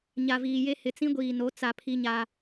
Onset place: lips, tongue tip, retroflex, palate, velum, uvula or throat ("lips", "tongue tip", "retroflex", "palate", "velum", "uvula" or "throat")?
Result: palate